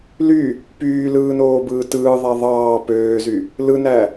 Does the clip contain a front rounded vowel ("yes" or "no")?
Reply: yes